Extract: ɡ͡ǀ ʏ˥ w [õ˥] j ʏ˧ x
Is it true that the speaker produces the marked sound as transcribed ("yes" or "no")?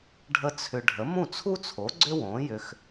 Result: no